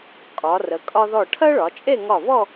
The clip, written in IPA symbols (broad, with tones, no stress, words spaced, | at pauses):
kʼɒ˩˧rə˩˧ kʼɒ˧ðɔ˧˩ ʈʰɜ˥ɭɒ˩˧t͡ʃʼe˥˧ ŋɒ˧˩βɔ˥˧